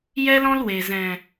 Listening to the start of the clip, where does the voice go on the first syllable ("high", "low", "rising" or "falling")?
high